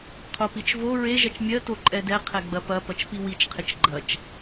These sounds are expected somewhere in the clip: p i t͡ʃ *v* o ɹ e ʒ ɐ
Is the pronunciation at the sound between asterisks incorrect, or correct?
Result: correct